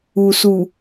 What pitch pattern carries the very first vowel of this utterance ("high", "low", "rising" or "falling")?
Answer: low